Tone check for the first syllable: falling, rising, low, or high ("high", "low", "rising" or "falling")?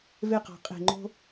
falling